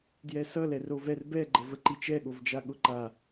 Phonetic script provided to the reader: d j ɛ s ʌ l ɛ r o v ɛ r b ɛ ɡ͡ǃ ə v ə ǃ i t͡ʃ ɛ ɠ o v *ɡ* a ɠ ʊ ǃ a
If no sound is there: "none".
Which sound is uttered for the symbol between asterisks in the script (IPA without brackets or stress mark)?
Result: d͡ʒ